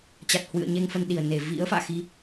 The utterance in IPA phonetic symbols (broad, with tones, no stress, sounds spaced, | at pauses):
t͡ɕ a˨˩ t̚ h w ɨ̰˧˨ ə̯ ɲ e˧ ŋ f ə˧ n ɗ i˨˩ ə̯ n e˧˩ v ḭ˧˥ ə̯ f a̰ː˧˨ x i˧